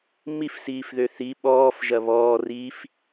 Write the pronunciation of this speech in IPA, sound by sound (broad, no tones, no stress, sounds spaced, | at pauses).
m i f s iː f ð ø θ i ɓ ɔː f ʒ ɐ β ɔː r iː f